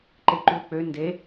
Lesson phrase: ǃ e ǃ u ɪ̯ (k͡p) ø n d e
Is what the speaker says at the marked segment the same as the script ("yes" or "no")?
yes